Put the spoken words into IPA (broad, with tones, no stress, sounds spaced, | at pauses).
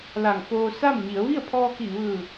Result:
l a˧˩ ŋ f oː˧ s a˥˨ m ɲ i˩˧ ə̯ ʋ i˥˨ ə̯ pʰ ɔː˧ k i˧˩ ʋ ɯː˧˩